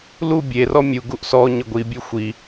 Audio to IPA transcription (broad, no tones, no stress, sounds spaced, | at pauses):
l u bʲ e r ɔ mʲ u ɡ u ʔ s ɔ ɲ ə ɡʷ i bʲ ʉ xʷ i